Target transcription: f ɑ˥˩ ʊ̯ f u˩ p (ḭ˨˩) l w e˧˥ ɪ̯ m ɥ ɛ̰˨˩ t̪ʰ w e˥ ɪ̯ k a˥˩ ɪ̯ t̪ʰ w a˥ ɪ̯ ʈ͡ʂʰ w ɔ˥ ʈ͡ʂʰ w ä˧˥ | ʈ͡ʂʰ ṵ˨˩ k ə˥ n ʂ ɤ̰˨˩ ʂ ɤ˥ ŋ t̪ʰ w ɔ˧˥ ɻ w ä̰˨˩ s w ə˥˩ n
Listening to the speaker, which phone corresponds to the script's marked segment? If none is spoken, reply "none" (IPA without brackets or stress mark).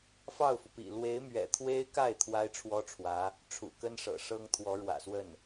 ḭ˨˩